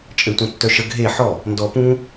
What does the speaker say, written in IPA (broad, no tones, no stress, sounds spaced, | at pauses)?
t͡ʃʼ ɘ tʷ œ̃ tː œ ʃ ə ɡʱ e ħ ɔ | n d ɔ p ũ